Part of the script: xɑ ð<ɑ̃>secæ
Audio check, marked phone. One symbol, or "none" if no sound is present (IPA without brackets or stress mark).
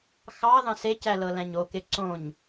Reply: ɑ̃